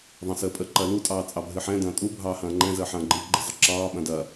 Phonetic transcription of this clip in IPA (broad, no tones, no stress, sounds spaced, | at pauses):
ðˤ ɐ̃ s əː pʼ ə ǃ ɐ l u tʼ ɑː t͡sʼ ɑ bʱ ɨ ħ ɛ̃ d ɐ̃ː tʼ u bʱ ɑː h ɐ̃ː ŋ͡ǃ ɛ̃ z əː ħ ɐ̃ː ɡ͡ǃ ɨ ɡ͡ǃ ə zˤ ə ǁ ɑː ɓ ɐ̃ d ɐ